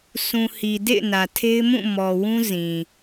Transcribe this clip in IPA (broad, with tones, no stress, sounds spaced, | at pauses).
s ũ˨ h i˨ d ḛ˦˨ ɪ̯ n ä˨ tʰ e˦ ɪ̯ m ũ˦˨ m ɔ˨ w ũ˦ z ĩ˨